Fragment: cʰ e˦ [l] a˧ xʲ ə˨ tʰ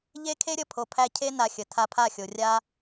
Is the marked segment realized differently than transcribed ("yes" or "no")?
yes